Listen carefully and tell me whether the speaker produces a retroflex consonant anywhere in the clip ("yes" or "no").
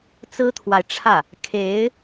yes